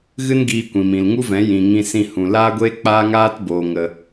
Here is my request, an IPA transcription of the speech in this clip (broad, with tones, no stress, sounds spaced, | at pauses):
ɣ ɨ˦ n ɡ iː˧ kʷ ĩ˨ m ĩ˨ l ŋ u˦ v ɛ̃˨˦ j ĩ˨ ŋ ĩ˧ s ĩ˧ h ũ˨ l aː˦ ɡʷ eː˦ k͡p aː˦ ŋ aː˦ t b oː˨ ŋ ə˨